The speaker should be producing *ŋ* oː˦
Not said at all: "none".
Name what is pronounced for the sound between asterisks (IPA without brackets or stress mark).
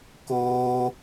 k